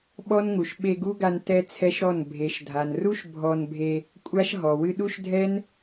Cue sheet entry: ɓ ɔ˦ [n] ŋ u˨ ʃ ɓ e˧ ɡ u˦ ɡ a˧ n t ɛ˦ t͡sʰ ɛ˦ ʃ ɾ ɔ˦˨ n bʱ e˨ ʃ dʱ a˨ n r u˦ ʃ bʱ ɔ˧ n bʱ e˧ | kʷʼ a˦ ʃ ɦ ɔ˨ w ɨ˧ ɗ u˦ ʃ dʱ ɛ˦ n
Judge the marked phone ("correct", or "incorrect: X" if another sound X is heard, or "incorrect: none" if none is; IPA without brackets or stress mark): correct